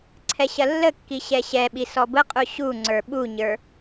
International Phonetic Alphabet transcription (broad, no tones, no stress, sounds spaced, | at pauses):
ǀʰ ɛ ɕ ɐ lː ə kː i ɕ ɛ ɕ ɛ ɓ i s ɔ b ə qʼ u ɕ u ŋ͡ǀ ə˞ ɓ u ɲ ə˞